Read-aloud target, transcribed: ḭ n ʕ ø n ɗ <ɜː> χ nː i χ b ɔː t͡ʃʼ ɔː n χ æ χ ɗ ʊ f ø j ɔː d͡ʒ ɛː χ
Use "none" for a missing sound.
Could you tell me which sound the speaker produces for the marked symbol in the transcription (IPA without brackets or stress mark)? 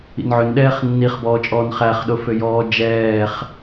ɛː